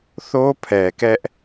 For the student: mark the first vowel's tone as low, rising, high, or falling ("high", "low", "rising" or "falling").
high